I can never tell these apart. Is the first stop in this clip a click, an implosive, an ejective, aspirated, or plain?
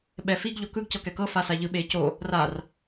implosive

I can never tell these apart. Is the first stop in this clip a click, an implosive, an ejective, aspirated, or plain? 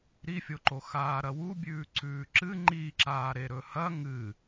click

